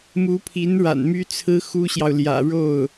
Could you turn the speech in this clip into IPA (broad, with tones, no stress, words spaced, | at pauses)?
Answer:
mu˧˥pʰi˧˥nɻa̰˨˩n my˥t͡sʰɹ̩˥ xu˥ɕjɑ˨ʊ̯ljä̰˨˩ ɻo˥˩ʊ̯